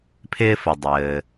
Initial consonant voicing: voiceless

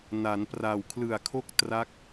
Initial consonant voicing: voiced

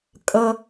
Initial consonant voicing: voiceless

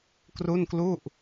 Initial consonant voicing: voiceless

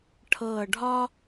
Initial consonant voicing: voiceless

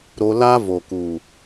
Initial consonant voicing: voiced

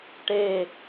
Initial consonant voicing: voiceless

